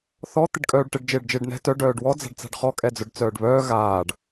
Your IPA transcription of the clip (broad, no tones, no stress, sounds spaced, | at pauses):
θ ɔ t̪ ɪ ɖ kʼ œː ɖ ʈ ɪ ɖ d͡ʒ ɪː ɖ d͡ʒ ɪː ɖ n ɛ̤ t œ ɖ œː ɖ w ɔ d͡z a̤ ɖ t͡s a̤ ɖ χ ɔ kʼ ɛ d͡z œ ɖ t͡s œː ɖ β œː ɣ aː ɖ